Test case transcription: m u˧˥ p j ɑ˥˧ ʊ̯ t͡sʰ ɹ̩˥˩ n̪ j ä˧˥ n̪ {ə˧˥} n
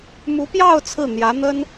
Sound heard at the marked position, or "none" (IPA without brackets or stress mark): ə˥